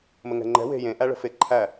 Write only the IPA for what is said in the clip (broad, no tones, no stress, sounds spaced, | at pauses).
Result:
m ə ŋ ɛ̤ ŋ͡ǃ ɛ̤ w e̤ j ẽ ʔ æ ɭ ə̤ f e ǃʰ æ